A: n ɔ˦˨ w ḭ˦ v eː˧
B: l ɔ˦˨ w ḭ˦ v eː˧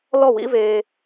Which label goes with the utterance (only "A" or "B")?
B